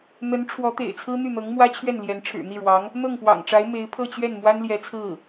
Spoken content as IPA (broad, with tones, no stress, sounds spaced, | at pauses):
n̪ ə˧˥ n ʈ͡ʂʰ w ɔ˧˥ t̪ ḛ˨˩ ɪ̯ t͡sʰ ɹ̩˥ n̪ y˥˩ n̪ ɤ˧˥ ŋ m w ä˥ t͡ɕʰ ɥ ɛ˥˩ n l j ɛ˧˥ n ʈ͡ʂʰ ɻ̩˨˩ n̪ i˥˩ ɻ w ɑ˧˥ ŋ | n̪ ɤ˥˩ ŋ p w ɑ̰˨˩ ŋ ʈ͡ʂ a˧˥ ɪ̯ m e˧˥ ɪ̯ pʰ ɤ˥˧ t͡ɕ ɥ ɛ˥˩ n m w a˥ n l j ɛ˧˥ t͡sʰ ɹ̩˥˩